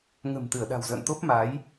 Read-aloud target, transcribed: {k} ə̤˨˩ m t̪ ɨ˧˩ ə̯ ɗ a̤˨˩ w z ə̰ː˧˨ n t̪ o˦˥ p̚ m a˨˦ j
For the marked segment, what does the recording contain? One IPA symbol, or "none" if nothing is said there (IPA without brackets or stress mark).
ŋ